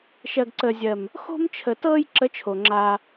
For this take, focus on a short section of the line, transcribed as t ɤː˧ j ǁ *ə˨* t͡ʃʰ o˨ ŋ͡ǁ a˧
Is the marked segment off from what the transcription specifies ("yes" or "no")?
yes